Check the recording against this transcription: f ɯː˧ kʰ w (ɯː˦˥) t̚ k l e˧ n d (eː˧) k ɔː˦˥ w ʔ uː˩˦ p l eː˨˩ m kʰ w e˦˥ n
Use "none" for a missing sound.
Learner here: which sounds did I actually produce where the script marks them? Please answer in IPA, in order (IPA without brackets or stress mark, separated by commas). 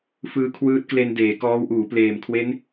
ɯː˦˥, eː˩˦